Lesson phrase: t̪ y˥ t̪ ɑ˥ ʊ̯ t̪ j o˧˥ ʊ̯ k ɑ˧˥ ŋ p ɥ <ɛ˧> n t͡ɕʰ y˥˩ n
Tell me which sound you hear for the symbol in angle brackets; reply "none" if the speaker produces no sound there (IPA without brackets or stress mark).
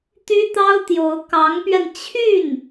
ɛ˧